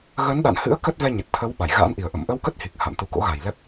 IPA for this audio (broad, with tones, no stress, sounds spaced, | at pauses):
ɣ ə˨˦ n ɗ a̰˧˨ n h ɨ̰˧˥ ə̯ k ə˦˥ t̚ v ɛ˧ ɲ ə˨˩ t̚ t̪ʰ ə˨˦ w ɓ a˧˩ j ɣ a̰ː˧˥ n ʔ i˨˩ ə̯ ʔ ə̰˧˨ m ʔ ə˧ w k ə˦˥ t̚ h i˨˩ k̚ h a̰˧˨ m t̪ u˨˦ k o̰˧˥ ɣ a˨˩ j l ɛ˦˥ p̚